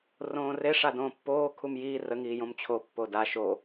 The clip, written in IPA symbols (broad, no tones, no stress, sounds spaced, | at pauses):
r õː r e ʂ a d õː pː oː kʰ u m j iː r ə ŋ iː j õ m t͡ɕʰ o pː o d a ʃ o